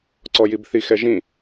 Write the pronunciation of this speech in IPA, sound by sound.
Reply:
ǀ ɔ j i b θ i x ɛ ʒ ĩ

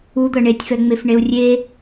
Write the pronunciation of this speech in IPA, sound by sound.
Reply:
u d̪ ɤ ɳ e tʲ f ɛ ŋ͡m e f ɳ e u̯ rʲ e

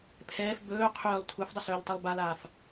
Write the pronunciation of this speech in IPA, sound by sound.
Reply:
pʰ ɛː f b ɵː qʰ ʏː lˠ tʰ u f dˤ ə s ɵː ʎ tˤ ɛ lˠ b a l aː f

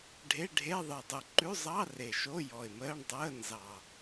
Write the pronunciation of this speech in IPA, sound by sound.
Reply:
ɖʱ e˧˥˧ ɖʱ e˧˥˧ ðˤ ə˨˩ ɪ̯ dˤ ʉ˨˩ ǃ ʉ˧˥˧ zˤ ɑ˧˥˧ r e˨˩ ʃ o˧˥˧ j ɔ˨˩ ɪ̯ m əː˧˥˧ ɳ dˤ əː˧˥˧ n z ɑ˨˩

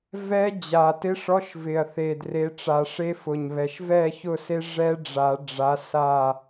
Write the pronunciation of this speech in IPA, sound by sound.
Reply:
v ɛ˦˥ d͡ʑ a˨˩ t ɪ˧˥˧ ʂ ɔ˧˥˧ ʃ v ɪ˨˩ ɐ̯ θ e˨˩ d r e˨˦ ʈ͡ʂ a˨˩˦ ʂ e˦˥ f ʊ˨˩ ɲ β ɛ˨˩ ʃ v ɛ˥˨ ç ʊ˥˨ s e˦˥ ʐ ɛ˦˥ ɖ͡ʐ a˨˩˦ ɖ͡ʐ a˨˦ s a˥˨

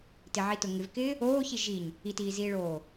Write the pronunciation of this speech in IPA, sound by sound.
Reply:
t ɪ ʕ i t ʊ ŋ ɪ v k ɪː | oː ç i ʒ i ɲ | i t iː z iː ɭ oː

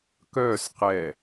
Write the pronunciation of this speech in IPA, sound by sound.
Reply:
k œː s q ɛ

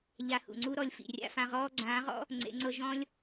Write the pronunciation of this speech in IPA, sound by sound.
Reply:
ʎ a˧ h ṵ˨ ŋ͡ǀ u˦ ɾ ɔ˧ lʲ f ḭ˨ rʲ a̰˦ f ã˧ ʁ ɔː˦ ɡ͡ǀ ãː˨˦ ʁ ɔ̰˦ | ŋ͡ǀ ḛ˨˦ ŋ͡ǀ ɤ˦ ʒ ɔ̃˦ lʲ

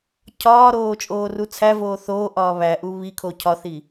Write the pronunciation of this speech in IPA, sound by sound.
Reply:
cʰ ɒː ɾ oː t͡ʃʼ oː r u t͡sʰ æ v oː θ oː ʔ ɒː β æ ʔ u β i kʰ o cʰ ɒ θ i

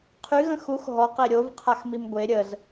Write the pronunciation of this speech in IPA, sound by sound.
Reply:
qʰ y ɣ ə̃ x u x ɦ ɔ q e ɾʲ o v qʰ a x m i m ɡʷ e ɾʲ ə z

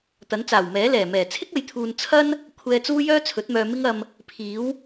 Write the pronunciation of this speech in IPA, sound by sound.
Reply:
t̪ ɐ˨˥ n t͡s aː˨˩ w m ɛː˨˥ l ɛː˨˩ m ɛː˨˩ t͡sʰ ɪ˥ k̚ ɐ˨ j t̪ʰ uː˨ n t͡sʰ ɐ˥ n | kʷʰ ɛː˧ t͡s uː˥ j œː˥ t͡sʰ ɵ˨˥ t̚ m œː˧ m ɪ˥ ŋ ɐ˧ m | pʰ iː˨˥ w

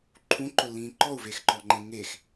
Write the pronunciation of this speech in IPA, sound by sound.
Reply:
ǃʰ ũ ǃ ʊ lː ĩː ǃ ɔ u̯ v e x ǃ ɔ ŋ͡ǃ ẽ ŋ e x

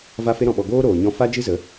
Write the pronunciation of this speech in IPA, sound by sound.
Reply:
v a˦ f e˦ ɾ ɔ̃˧ ɓ ɔ˧ ɡ oː˦ ɾ oː˨ ɲ ɔ̃˧ f a˦ d͡ʒ ɨ˦ z ə˨˦

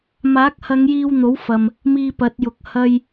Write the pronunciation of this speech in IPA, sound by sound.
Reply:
m aː˨˥ k̚ h ɐ˨˧ ŋ j iː˧ w n̪ o˨˥ w f ɐ˨ m | m iː˧ p ɐ˨˥ t̚ j ʊ˨˥ k̚ h ɐ˨ j

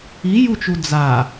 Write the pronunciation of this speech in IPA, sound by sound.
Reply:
i j u t͡ʃ u d͡z a

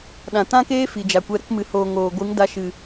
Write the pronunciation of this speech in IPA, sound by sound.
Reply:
ɗ ã˨ t ã˦ k eː˦ f i˨ d͡ʒ a˨ kʷ ɛ˧ ɾ ə˧ k m ɨ˨ h oː˨ ŋ oː˨ ɡʷ ɨ˨˦ ŋ d a˧ ʃ ɨ˨

